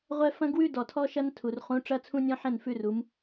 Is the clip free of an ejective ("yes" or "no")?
yes